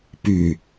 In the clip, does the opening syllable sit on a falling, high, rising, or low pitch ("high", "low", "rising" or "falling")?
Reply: low